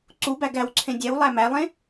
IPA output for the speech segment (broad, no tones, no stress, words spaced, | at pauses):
ǀubæ ɡæwǀʰẽ dʲæwlˠæ mælˠẽ